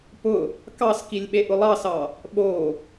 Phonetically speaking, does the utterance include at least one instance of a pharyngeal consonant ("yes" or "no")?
no